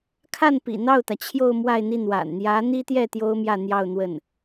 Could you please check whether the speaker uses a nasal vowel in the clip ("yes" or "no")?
no